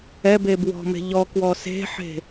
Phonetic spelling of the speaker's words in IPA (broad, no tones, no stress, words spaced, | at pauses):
ɛbe bwɔ̤me̤ ʎɔ kwɔse̤ħe̤